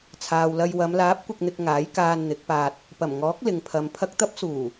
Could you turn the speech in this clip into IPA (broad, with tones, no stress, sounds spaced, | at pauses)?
t͡sʰ aː˨ w l ɐ˧ j w ɐ˨˧ m l aː˨˥ p̚ kʷ ɪ˨ k̚ n̪ ɪ˨ k̚ ŋ aː˨˥ j k aː˧ n n̪ ɪ˨˥ k̚ p aː˧ t̚ | p ɐ˨˩ m ŋ ɔː˨˥ k̚ l ɪ˨˧ ŋ pʰ ɐ˨˧ m pʰ ɐ˧ k̚ t̪ ɐ˥ p̚ s uː˨˩